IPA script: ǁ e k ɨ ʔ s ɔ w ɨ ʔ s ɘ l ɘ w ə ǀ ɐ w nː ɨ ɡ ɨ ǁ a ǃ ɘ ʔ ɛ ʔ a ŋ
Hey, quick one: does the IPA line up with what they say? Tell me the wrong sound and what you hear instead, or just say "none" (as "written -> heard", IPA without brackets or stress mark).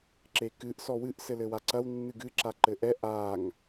ə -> a